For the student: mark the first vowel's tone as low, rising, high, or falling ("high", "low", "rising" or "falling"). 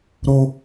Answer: high